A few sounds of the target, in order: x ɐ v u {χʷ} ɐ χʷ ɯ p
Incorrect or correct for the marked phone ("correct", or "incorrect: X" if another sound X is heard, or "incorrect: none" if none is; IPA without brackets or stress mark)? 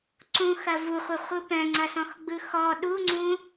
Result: correct